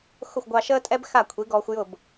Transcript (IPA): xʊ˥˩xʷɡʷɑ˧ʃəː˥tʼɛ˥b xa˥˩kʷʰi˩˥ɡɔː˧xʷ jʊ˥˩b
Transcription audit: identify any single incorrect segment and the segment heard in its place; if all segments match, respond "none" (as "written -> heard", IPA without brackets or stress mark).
none